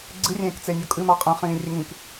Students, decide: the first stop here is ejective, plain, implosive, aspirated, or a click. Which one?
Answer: click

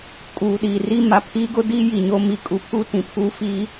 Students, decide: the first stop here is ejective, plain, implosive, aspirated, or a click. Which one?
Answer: ejective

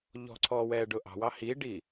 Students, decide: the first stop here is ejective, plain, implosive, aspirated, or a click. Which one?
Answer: click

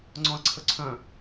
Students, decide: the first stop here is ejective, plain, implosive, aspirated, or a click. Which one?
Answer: click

